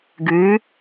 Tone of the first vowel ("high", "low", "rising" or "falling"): rising